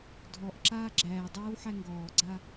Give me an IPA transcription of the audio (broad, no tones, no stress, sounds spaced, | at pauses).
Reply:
dʱ ɔ ʔ ǁ aː ɡ͡ǁ æː dˤ ɛː w ħ æ ŋ ɡ ɔː ɡ͡ǀ a